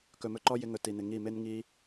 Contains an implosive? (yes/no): no